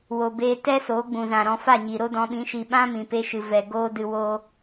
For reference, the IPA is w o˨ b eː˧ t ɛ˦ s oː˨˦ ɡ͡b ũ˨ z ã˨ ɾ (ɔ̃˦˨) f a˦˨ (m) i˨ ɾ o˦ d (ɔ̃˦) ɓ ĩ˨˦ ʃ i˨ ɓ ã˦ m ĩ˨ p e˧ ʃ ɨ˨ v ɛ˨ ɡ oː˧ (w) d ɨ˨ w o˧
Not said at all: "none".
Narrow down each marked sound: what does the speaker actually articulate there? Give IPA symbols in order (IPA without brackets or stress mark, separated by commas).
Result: ɔ̃˧, ɲ, ɔ̃˧, none